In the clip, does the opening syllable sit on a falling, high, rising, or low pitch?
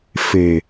low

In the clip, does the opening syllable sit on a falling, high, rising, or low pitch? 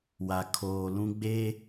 low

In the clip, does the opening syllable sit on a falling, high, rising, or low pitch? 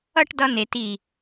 falling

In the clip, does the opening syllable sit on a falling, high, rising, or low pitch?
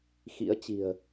rising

